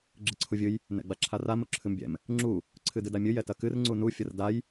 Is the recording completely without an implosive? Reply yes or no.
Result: yes